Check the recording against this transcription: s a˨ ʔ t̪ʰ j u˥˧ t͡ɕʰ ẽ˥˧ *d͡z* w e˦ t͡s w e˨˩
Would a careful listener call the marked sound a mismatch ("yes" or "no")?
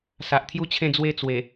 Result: no